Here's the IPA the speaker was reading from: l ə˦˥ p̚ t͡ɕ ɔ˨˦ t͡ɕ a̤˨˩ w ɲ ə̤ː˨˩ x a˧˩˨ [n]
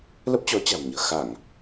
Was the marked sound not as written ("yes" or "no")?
yes